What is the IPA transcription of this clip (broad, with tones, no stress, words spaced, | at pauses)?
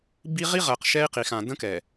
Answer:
bi˦ ʁi˦ʁɜ˨q ʃɛ˦i̯qi˨xã˨ də̃˦kɛ˨